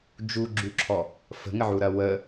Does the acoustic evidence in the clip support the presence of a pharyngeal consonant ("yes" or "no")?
yes